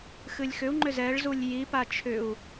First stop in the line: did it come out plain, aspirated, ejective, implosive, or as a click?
click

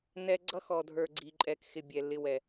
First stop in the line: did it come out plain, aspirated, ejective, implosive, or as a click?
click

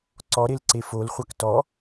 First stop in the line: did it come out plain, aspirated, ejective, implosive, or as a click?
click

